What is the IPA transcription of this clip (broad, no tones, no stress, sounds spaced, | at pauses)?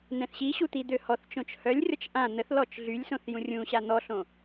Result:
n̪ ɛ̃ θ ɕ i ɕ u t̪ i d̪ ø h ɔ θ t͡ʃ õ t͡ʃ h œ lʲ rʲ ɔ t͡ʃ ʔ ã n̪ ə θ l ɔ t͡ʃ ɮ y lʲ s õ θ j ũ rʲ ũ ɕ a n̪ ɔ ɬ õ